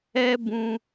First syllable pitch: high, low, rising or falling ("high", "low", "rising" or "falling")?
high